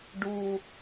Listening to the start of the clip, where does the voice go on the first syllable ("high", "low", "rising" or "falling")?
low